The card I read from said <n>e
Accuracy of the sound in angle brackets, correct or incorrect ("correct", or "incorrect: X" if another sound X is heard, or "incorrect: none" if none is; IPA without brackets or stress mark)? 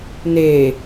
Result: correct